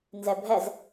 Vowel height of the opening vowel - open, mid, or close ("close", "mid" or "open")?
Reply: mid